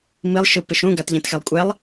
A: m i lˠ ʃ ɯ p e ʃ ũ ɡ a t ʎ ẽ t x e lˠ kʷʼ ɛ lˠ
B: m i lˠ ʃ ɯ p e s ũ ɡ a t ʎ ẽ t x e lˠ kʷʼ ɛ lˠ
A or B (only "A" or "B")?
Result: A